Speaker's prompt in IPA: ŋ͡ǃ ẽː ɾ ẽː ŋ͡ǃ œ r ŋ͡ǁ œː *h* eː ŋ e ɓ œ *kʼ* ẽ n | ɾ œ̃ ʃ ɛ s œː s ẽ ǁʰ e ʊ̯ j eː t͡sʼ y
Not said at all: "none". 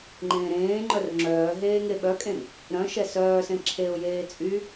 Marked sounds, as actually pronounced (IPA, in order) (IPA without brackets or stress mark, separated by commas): ɦ, kʼ